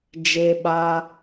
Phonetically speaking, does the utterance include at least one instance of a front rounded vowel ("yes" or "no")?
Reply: no